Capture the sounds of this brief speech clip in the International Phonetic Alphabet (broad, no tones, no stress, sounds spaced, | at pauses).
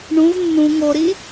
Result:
ɳ ũ v nː ũ ŋ o ɾ i